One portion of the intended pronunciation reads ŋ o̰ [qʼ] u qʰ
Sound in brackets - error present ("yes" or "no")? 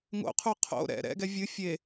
yes